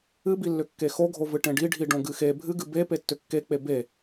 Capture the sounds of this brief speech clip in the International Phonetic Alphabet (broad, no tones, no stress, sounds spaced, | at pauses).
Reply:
ɨ b i lː ʏ kː e x o ɡʱ o v ɨ ʈ ẽ ɖ i ɖʱ i ɖ õ ɡ ɨ x e bʱ ɨ ɡ ɨ b e p e tː ʏ kː e k͡p e b e